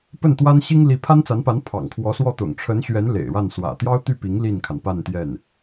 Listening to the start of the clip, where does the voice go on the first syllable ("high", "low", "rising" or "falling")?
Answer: falling